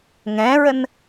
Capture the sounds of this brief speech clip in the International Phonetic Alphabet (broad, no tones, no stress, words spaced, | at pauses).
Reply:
ŋɛ̃ɹən